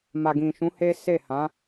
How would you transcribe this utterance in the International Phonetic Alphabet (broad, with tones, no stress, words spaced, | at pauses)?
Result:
ma˨ɡĩ˨ʃũ˨˦ he˦ se˦˨ hã˨˦